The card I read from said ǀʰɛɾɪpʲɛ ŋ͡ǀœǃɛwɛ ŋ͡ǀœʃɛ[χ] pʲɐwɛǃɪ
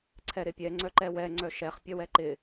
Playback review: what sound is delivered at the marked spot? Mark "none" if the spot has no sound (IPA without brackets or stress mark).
χ